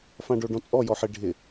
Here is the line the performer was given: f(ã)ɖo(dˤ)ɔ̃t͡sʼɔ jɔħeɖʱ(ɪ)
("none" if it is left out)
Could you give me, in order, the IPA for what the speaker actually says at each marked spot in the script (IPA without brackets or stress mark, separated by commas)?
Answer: ã, ɖ, ɪ